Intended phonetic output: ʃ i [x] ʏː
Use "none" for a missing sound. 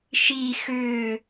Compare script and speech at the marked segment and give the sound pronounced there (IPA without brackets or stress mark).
x